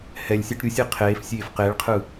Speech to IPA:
hɛlʲsʲaʈ ɾʲusʲi qʰeːfsʲeːf qeɭqʰɯ

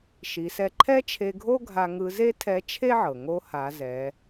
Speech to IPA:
ʃi˩˧ sɛ˧ ǃʰɛ˥t͡ʃʰe˧ɡʱo˥ ɡʱa˧ ŋɯ˧˥ ze˥tʰɛ˧˥t͡ʃʰe˥ʕɤ˩ ŋo˧˥ha˩˧ zɛ˩˧

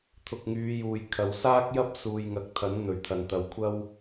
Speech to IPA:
t̪ʰʊ˨k̚ŋyː˨˧juː˨j kʰɐ˨wsaː˥k̚jɐ˥p̚ suː˨jŋɐ˨k̚t̪ʰɐ˨˥n n̪ɵ˨ɥt̪ʰɐ˨nt̪ɐ˨˧w kʷʰɐ˥w

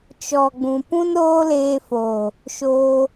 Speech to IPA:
t͡ʃɔ˨ɡ͡bũ˨ pũ˦nɾoː˦leː˧foː˨ | ʃoː˧

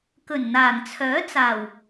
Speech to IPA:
kɵ˨˩nn̪aː˨˩ŋt͡sʰœː˨˥t͡saː˨˩w

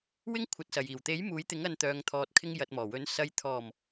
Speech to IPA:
wɪ˥ŋkʷʰɐ˨˥t̚sɐ˨j iː˨˩wt̪e˨˥j muː˨˥jt̪ɪ˨˥ŋɐ˧n t̪œː˨ŋt̪ʰɔː˨t̚kʰɪ˧ŋ jɐ˨t̚mɔː˨˩wɵ˨˧n sɐ˨jt̪ʰɔː˨˩m

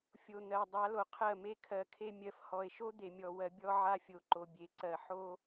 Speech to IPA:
fʲo˨ n̪ɜ˨dˤa˨˦lo˨ qʰɜ˦˨me˦kʰɜ˨˦kʰe˦ mʲɜ˨fhɔ˨e̯ʃo˦ d̪e˨mʲɔ˨ wɜ˨ bʲɔ˦ʕa˦ fʲo˨ǃo˨bʲe˨ǀɜ˨ ħo˦

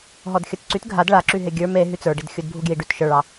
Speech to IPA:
ɦɔdxʲə˞tǀyt ɡʱad ɭaǁyɦe ɡʲə˞m e ɦyt͡sə˞ ɖidxʲudbʱuɡjiɖ ytʃə˞ɭɑ

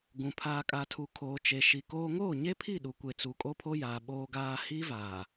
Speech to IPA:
ɡũ˨ pʰaː˨kʼa˨tʰu˨kʰoː˨ t͡ʃe˨ʃi˨koː˦ ŋoː˦˨ɲe˦pʰi˦˨ ɗu˨kʷe˨ t͡su˨kʼo˦pʰo˦jaː˨ ɓoː˦ɡaː˦ hiː˦vaː˨

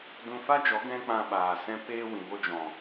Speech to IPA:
dũ˧fa˦d͡ʒɔ˨˦ ɡɛ̃˦k͡pã˧ɓaː˨ sɛ̃˧ peː˧wĩ˨ŋo˧d͡ʒɔ̃˨

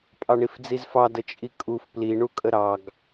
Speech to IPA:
pʼɑɳifd͡zizfɑ dət͡ʃʼikʼuf pli ɳukʼəɾɑɡ

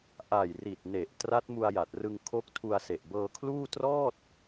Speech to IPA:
ʔa˨˩jri˨˩t̚ne˨˩ʔ tra˦˥t̚mu˧a̯ja˨˩t̚rɯ˧ŋ kʰo˦˥k̚tʰu˧a̯se˨˩ʔ bɤː˧kʰluː˥˩ trɔː˥˩t̚

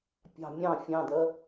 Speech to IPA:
pʲɑ̤ mʲɑ̃ fʲɑ̃dɜ

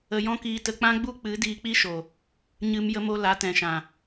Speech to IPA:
ə˧jɔ̃˦kiː˧tə˧ k͡pã˦ɡ͡bu˦ k͡pɨ˨˦ diː˧k͡pi˦ʃo˨ | ɲɨ˧m jə˧mo˧ la˨˦tɛ̃˨ʃã˨

